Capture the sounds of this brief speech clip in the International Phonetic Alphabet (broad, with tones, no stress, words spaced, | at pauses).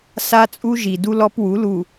sa˦t͡sʼu˦ʒi˨ du˦lɔ˦pwu˨˦ lu˨